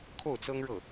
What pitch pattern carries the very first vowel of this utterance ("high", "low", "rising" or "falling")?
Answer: falling